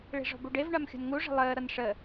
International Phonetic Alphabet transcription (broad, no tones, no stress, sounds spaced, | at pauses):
ɭ i̤ ʐ ɔ̤ b u ɖ e v ɳ a m xʲ ṳ n ŋ u ʐ ə̤ lˠ əː ɾ ʌ n ʂ ə